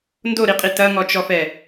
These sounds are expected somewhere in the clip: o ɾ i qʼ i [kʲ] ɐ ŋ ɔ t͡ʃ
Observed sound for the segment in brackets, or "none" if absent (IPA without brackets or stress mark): t